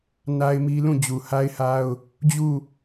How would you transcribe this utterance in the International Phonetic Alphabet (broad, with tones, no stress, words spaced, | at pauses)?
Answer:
na˦ɪ̯mi˦ lũ˦˨ d͡ʑu˨ha˦ɪ̯ha˦ʊ̯ | d͡ʑu˦˨